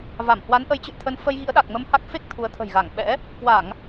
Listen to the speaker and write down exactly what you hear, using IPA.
v a˧˩ m h w a˨˦ n ʔ ə˨˦ j t͡ɕ ɨ̰˧˨ j t̪ʰ ə˧ n f ə˧ j ɣ ḭ˧˥ ə̯ ɗ a˨˩ k̚ m ə˧ m h a˦˥ k̚ f e˦˥ k̚ t̪ʰ u˨˦ ə̯ t̪ʰ ə̤˨˩ j ɣ a˧˩ ŋ ɓ ɛ̰˧˥ | k w a˧˩˨ ŋ

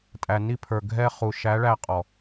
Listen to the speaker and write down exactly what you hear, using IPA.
tʼ æ˨ n i˧ pʰ ə˞˨ ɡʱ ɛ˧ χ u˨ ʃ æ˨˦ ɭ æ˧ qʼ ɔ˨

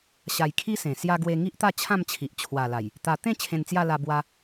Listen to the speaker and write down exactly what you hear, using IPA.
ɕ a˧ j kʰ i˦ s ẽ˨˩ s j a˧ ɡ w e˧ ŋ i˦ ʔ t̪ a˥˧ t͡ɕʰ ã˥˧ m t͡ɕʰ i˨ ʔ t͡ɕʰ w a˨˩ l a˨˩ j | t̪ a˧ t̪ ẽ˥˧ t͡ɕʰ ẽ˧ n t͡s j a˥˧ l a˧ b w a˦

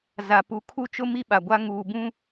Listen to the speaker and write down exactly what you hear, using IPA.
z a˨ p u˨ kʰ u˦ t͡ʃ ʊ˦ m i˦ ɓ a˨ ɡʷ a˦ ŋ uː˨ b ũ˦

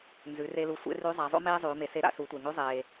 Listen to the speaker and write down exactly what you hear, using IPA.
n z ʉ˩˧ r e˧ l u˧ sʷ ḛ˧˥ r ʉ˧˥ zˤ a˩˧ zˤ o̰˥ m eː˥ zˤ ʉː˩˧ m e˩˧ s e˧˥ ɾ a̰˧ s u˩˧ tʷ e˩ ŋ ʉ˧˥ zˤ eː˩

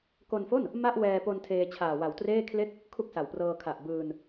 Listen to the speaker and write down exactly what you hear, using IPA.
k o˧ n f o˥˩ n | m a˥˩ ʔ w ɛː˧ p o˧ n tʰ eː˧ t͡ɕʰ aː˨˩ w a˨˩ w t r eː˥˩ kʰ l e˥˩ k̚ | kʰ u˥˩ k̚ s a˨˩ w p r ɤː˧ kʰ a˨˩ ʔ b ɯː˧ n

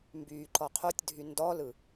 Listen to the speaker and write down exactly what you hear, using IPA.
m b yː ǃ ɔ qʰ o tʲ dʱ y n d ɔ l ɯ

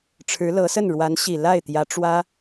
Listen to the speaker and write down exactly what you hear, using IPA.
ʈ͡ʂʰ ɻ̩˧˥ l ɤ˧˥ s ə˥˩ n ɻ w a˧˥ n ɕ i˨˩ l a˥˩ ɪ̯ t̪ j ä˧˥ ʈ͡ʂ w ä˥

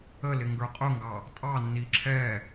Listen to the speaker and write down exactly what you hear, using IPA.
ə l ɪ ŋ ɡ ə˞ qʼ ʊ ŋ ɡ ɑ | tʼ ɑ nː i ǁʰ ɛ

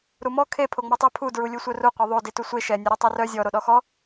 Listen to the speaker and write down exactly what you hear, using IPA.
ɾ u m ɔ kʰ e pʰ o ŋ͡m ɔ tˤ ɛ pʰ u d ɹ u lʲ u sʷ œ r u qʷ ɛ ðˤ o d i t u sʷ e ʃ ɛ nʲ ɛ ɾ e tˤ ɛ r œ zʲ ɔ ɾ o ɗ ɔ x ɔ

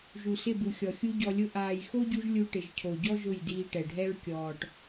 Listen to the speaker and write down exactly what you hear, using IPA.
ʒ u˨ s ɪ˦˨ b u˨ xʲ ɔ˨ xʲ u˦ ɟ ɔ˧ lʲ ʊ˦ ʔ aː˨ j x o˦ ɟ u˧ ʒ lʲ u˧ ʈ ɪ˨ ʒ cʰ o˨ ɟ ɔ˦ ʒ ʊ˦˨ j d iː˧ ʈ ɛ˨ ɖʱ ɛ˦ ɹ kʲ ɔː˨ ʈ

